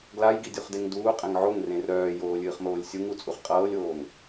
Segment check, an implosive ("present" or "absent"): absent